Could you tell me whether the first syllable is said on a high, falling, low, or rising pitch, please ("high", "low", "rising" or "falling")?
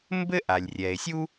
high